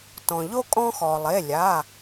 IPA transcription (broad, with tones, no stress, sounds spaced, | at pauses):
t ɔ̃˩ ʎ o˦ kʼ ɔ̃˦ x ɔ˩ lˠ e˩˧˩ lʲ a˩˧˩